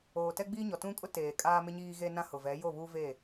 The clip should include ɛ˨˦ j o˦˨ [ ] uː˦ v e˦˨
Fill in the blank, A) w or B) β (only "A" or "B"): B